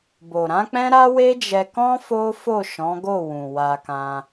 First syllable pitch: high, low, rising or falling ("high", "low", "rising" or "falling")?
low